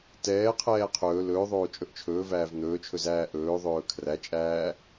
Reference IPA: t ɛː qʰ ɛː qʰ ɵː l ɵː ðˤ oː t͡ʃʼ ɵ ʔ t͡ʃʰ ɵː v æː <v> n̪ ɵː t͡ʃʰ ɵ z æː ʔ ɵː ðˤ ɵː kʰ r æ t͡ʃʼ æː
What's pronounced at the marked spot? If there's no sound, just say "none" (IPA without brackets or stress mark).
v